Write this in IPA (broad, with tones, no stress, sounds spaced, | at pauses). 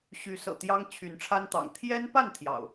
ɕ y˨˦ s ɤ̰˨˩ t̪ j ɑ˦ ŋ t͡ɕʰ y˨˦ n ʈ͡ʂʰ a˦ n t̪ ɑ̰˨˩ ŋ t̪ʰ j ɛ˦ n p a˥˨ n t̪ʰ j ɑ̰˨˩ ʊ̯